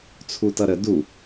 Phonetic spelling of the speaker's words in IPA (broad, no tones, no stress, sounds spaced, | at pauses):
t͡sʰ u t ʌ ɾ ə d u